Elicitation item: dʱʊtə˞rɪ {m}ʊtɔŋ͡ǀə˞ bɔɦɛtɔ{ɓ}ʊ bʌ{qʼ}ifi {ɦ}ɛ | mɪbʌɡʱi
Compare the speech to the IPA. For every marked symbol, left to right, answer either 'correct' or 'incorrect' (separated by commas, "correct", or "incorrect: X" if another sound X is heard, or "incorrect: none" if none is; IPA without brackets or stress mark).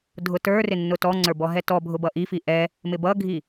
incorrect: nː, incorrect: bʱ, incorrect: ʔ, incorrect: ʔ